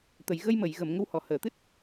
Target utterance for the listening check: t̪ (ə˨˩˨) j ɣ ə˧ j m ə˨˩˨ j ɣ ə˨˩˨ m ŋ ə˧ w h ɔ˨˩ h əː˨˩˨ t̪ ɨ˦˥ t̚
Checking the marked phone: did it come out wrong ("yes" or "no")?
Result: no